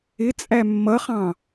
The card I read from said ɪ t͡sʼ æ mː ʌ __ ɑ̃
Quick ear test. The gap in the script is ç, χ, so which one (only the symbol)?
χ